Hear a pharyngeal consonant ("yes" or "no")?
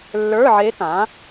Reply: yes